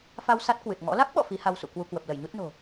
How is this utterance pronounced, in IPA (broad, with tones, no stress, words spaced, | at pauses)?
fa˧w sa˦˥t̚kwɨ˨˩t̚ŋɔ̰˧˥ la˦˥k̚ɓɔ̰˧˨ fi˨˦ha˧wsṵ˧˨ kwu˧kwə˨˩p̚ lə˧˩jɲu˦˥t̚no̤˨˩